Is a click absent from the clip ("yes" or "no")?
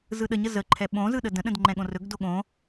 no